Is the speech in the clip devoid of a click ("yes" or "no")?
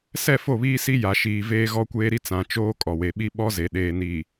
yes